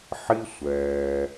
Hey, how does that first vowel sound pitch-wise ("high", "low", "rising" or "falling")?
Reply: high